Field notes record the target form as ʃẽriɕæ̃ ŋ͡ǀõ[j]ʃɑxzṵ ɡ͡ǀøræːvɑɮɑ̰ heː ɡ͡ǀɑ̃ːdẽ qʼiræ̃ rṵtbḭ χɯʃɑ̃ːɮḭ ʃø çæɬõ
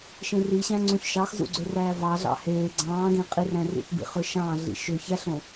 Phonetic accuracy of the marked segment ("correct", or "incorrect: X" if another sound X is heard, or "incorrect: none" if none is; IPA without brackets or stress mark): incorrect: ç